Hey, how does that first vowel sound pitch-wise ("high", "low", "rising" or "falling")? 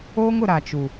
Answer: high